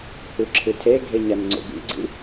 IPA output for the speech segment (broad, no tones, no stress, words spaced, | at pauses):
hʉǁʰɨtʰeɡʱe ɲanŋ͡ǀo̰bḭɡ͡ǀḭ